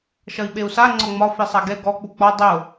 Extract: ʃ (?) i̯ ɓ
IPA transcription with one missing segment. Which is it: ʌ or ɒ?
ʌ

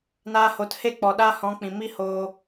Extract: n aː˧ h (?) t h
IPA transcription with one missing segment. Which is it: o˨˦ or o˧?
o˨˦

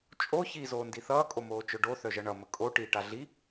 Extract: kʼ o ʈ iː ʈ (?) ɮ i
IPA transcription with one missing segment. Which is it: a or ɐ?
a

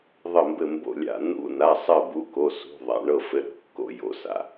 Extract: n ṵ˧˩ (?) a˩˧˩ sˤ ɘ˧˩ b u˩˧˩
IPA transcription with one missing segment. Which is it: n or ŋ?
n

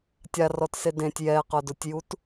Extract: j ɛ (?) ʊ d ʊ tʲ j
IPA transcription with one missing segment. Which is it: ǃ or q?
q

